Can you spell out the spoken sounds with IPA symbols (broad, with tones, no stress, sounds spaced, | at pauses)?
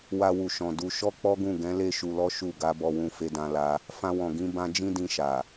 w a˧ w u˨ ʃ ɔ̃˨ d u˧ ʃ ɔ˦ k͡p ɔ˦ ɡ ũ˦˨ ɡ ɛ̃˨˦ l e˦˨ ʃ u˧ l ɔ˦ ʃ u˦˨ ɡ a˨˦ b ɔ˧ w ũ˧ f e˧ d ã˧ l a˧ | f ã˧ w ɔ̃˨ ɡ ĩ˧ b ã˦ d͡ʒ ĩ˦ d ĩ˧ ʃ a˨